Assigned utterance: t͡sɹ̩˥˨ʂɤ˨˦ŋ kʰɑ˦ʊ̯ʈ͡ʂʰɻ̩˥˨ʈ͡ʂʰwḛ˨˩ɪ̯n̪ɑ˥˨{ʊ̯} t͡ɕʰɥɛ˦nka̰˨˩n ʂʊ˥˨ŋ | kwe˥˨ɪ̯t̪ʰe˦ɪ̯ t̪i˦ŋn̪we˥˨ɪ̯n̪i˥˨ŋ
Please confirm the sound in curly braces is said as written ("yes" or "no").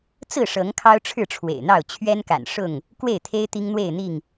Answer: yes